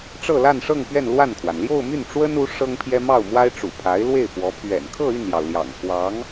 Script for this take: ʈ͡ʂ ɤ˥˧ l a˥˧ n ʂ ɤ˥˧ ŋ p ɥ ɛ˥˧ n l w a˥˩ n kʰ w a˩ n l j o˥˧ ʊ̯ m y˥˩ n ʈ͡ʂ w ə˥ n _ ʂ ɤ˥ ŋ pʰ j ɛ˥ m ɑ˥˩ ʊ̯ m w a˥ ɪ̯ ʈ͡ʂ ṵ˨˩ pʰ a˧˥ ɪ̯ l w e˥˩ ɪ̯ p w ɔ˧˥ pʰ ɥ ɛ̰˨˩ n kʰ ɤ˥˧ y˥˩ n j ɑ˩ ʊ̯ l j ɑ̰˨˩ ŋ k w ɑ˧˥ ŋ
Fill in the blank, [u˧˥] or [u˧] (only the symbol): u˧˥